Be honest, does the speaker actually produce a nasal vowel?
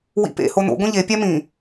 yes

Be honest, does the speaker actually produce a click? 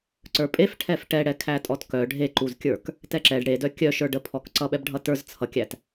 yes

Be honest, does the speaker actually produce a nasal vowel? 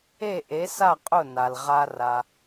no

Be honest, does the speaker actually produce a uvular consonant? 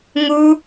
no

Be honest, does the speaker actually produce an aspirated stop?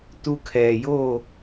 yes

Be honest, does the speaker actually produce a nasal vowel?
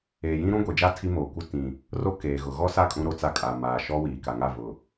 yes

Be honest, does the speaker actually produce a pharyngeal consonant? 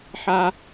yes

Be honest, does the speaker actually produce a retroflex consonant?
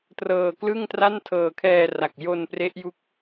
no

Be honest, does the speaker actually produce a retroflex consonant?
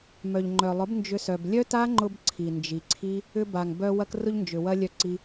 no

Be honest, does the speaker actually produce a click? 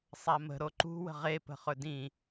yes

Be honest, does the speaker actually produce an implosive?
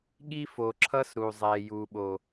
yes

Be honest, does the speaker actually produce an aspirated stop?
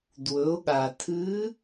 yes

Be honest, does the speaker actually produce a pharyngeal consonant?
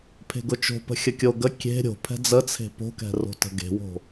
no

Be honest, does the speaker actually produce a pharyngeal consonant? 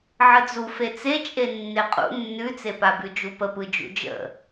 yes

